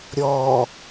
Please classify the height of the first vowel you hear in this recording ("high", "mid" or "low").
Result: mid